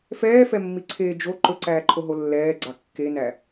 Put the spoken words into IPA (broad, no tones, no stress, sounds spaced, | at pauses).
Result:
f ɛː f ɛ mː i ǀʰ eː d͡ʒ o ǃ ɵ ǀ æː ǃʰ o ɦ o lː ɛː ɡ͡ǀ ɑ kː e n æ